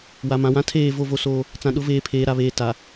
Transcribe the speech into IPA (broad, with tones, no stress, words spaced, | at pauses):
wa˨mã˨wã˦ tʰeː˦˨ vo˦˨vo˦soː˦ | t͡sã˨ɗʊ˨˦veː˨ pʰeː˨ɾa˨βeː˨ ta˨